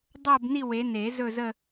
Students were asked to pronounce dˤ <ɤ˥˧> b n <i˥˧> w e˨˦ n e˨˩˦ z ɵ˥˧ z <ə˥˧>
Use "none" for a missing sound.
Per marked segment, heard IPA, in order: ɤ˥˧, i˥˧, ə˥˧

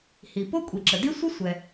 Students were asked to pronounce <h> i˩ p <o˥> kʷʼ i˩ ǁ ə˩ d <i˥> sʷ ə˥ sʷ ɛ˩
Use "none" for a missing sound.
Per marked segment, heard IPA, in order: h, o˥, i˥

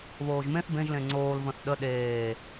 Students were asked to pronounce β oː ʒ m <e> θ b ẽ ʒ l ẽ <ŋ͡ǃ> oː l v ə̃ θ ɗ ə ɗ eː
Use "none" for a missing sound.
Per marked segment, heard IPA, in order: ẽ, ŋ͡ǀ

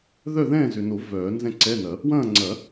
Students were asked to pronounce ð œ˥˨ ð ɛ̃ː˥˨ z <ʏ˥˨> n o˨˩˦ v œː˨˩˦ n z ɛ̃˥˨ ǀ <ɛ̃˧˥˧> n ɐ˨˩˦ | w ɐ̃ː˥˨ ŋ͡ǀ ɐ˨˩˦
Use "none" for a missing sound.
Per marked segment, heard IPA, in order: ʏ˨, ɛ˧˥˧

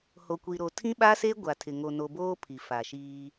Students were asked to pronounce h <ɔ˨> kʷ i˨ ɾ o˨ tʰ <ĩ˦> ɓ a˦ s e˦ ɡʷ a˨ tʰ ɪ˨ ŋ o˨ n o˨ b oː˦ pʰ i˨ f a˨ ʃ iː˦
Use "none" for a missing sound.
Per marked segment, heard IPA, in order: o˨, ĩ˦

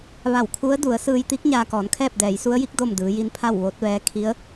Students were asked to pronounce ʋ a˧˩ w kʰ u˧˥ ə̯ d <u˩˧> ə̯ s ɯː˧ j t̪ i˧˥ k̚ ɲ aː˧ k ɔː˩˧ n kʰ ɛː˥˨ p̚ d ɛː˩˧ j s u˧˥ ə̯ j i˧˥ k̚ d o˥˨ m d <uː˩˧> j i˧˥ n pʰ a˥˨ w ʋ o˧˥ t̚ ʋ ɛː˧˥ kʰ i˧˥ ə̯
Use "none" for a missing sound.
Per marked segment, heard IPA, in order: u˩˧, ɯː˩˧

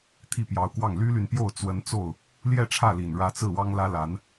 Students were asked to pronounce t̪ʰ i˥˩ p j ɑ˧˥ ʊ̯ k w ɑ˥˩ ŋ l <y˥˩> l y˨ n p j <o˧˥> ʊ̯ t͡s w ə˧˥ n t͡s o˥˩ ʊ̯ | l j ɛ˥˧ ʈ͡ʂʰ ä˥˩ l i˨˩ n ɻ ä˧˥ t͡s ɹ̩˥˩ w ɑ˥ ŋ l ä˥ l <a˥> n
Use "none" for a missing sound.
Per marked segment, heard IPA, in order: y˥, o˥˩, a˧˥

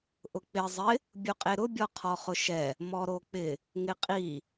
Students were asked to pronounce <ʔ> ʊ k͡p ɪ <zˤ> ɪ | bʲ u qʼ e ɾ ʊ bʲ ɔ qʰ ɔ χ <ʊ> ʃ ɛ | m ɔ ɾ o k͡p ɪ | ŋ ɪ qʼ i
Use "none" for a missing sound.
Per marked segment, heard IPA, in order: ʔ, zˤ, ʊ

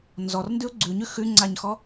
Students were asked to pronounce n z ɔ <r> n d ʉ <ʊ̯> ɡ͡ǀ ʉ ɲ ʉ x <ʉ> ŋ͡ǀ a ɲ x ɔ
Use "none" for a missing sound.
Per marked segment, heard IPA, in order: r, ʊ̯, ʉ

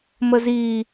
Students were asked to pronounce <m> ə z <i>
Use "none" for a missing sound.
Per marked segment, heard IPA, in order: m, i

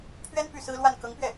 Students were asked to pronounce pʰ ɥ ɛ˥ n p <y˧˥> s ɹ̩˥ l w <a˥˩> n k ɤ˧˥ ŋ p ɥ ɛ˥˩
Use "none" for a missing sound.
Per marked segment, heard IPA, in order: y˥˩, a˥˩

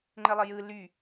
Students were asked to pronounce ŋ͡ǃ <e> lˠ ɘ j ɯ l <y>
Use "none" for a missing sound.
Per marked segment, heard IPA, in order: ɘ, y

